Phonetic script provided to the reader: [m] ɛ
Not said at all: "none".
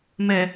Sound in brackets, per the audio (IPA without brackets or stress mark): m